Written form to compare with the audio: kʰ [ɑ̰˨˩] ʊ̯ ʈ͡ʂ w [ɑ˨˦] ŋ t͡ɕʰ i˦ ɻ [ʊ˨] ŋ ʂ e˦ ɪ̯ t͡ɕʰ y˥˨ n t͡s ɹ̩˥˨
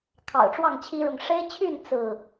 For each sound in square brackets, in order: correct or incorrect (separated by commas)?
correct, incorrect, correct